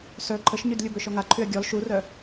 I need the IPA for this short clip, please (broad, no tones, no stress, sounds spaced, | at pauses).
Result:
s œ ǃʰ ə ʃ ɲ y d lʲ u b ø ʃ ɔ ŋ a ǃʰ y ɐ̯ ɡʲ ɔ l ʃ u r œ